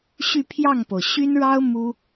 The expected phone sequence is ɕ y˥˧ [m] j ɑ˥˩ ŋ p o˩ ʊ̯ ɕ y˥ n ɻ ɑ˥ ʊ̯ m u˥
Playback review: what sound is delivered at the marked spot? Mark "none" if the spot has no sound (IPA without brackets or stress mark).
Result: pʰ